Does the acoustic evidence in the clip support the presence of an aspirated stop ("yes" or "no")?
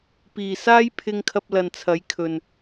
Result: yes